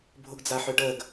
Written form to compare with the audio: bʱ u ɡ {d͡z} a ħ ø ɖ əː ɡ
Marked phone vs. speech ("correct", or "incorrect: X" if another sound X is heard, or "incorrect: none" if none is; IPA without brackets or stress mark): correct